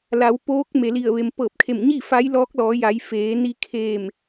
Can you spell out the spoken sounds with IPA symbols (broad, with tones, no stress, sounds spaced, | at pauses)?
l a˩˧ w p oː˧˥ k̚ m e˩ l i˧˩ ə̯ ʋ e˩ m p ɤː˧˩ p̚ kʰ e˧˩ m ɲ i˥˨ f a˧˥ j l ɔː˧˥ k̚ l ɔː˩˧ j a˩˧ j f eː˩˧ n i˧ kʰ e˧˩ m